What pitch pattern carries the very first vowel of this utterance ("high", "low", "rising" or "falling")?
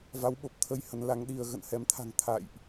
rising